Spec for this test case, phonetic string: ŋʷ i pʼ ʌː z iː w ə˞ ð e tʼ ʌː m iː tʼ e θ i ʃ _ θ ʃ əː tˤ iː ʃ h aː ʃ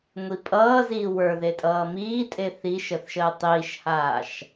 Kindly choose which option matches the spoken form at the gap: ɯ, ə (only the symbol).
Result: ə